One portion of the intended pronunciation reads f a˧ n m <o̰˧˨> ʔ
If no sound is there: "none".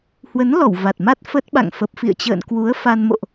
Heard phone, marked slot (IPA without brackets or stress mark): o̰˧˨